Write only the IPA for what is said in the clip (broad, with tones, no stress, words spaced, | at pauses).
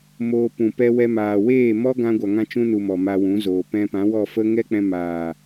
moː˧pũ˨ pɛ˧wɛ˧maː˨ weː˦˨mɔ˦ ɡã˧ɡʷa˨ ŋã˧t͡ʃũ˧nu˨ mɔ˨ma˧wũ˨˦zoː˨ pɛ̃˧pã˨˦wɔ˦˨ fə˦ ŋɛ˦k͡pɛ̃˧ maː˨